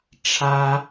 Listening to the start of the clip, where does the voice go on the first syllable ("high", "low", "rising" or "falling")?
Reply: high